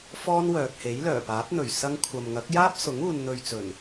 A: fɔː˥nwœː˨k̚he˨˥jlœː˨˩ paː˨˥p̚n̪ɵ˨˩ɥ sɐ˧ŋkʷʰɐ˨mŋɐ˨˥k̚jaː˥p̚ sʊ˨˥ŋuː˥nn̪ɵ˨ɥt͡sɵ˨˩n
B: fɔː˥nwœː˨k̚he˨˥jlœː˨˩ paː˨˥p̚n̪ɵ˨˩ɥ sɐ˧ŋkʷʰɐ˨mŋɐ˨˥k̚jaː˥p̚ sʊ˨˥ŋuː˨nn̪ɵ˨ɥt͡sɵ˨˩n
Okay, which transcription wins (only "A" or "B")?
B